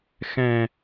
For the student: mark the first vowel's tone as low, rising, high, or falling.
low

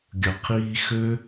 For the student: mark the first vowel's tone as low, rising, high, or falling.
low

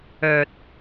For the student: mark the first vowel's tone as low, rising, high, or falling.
low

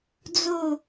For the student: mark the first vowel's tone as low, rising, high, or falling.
falling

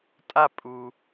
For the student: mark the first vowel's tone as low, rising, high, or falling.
falling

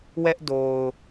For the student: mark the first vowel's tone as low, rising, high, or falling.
high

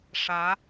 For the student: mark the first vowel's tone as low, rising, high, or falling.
rising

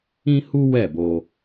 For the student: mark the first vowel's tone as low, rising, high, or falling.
high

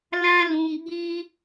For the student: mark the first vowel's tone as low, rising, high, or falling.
high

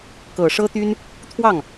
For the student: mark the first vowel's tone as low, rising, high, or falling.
low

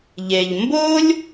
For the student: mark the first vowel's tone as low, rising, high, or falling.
low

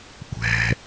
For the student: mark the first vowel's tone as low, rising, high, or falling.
low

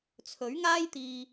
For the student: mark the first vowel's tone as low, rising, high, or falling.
rising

